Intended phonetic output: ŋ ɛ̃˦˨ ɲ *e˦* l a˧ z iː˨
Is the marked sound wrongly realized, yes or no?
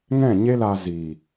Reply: no